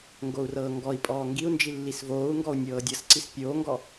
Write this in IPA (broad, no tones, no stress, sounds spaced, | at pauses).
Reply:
ŋ ɡ o u̯ r ɤː ŋ ɡ ɔ i̯ pʼ ɔː ŋ ɡ i u̯ n d͡ʒ i lː i s v oː u̯ ŋ ɡ ɔ u̯ nʲ ɤː dʲ ɤ s ǀ i s pʲ oː ŋ ɡ ɔ